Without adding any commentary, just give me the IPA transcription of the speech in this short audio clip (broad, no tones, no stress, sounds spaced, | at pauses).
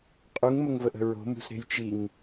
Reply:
qʼ u ŋ m ə ŋ v ə ʔ ə̤ ɹ o̤ m ṳ s ɾ e̤ j t͡ʃ i ŋ